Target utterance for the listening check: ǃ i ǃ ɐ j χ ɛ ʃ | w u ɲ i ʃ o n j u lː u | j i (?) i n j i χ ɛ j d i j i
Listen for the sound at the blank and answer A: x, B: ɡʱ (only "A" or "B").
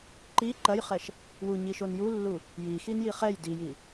A